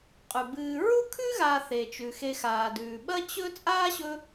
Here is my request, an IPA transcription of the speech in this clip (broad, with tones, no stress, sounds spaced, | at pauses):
qʼ ʉ˩ b ɨː˨ ɹ u˥ kʰ ʉ˥ ɣ aː˨ θ e˩ t͡ʃ ʉ˩ x e˨ x aː˩ d ʉː˩ ɓ ɐ˥ t͡ɕ ɵ˥ t͡sʼ aː˥ ɕ ɵ˦